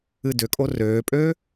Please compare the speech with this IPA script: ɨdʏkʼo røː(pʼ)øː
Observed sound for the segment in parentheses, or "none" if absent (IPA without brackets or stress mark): pʼ